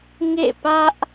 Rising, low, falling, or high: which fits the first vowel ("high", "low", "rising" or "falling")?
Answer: falling